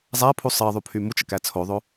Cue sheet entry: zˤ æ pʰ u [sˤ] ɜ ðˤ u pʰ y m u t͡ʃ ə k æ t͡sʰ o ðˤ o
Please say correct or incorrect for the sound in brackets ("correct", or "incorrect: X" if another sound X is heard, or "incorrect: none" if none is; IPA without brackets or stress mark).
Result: correct